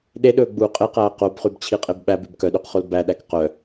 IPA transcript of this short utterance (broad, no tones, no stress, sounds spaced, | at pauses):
ɗ e ɗ ɵː ɡ͡b uː qʼ e q æː q o b χ y b t͡ɕʰ i qʼ e b ɓ æ b ʉ b k œ ɗ ʉ q χ o l b æ ɗ æ k q œ